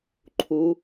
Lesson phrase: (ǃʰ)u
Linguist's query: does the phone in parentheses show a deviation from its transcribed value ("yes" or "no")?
no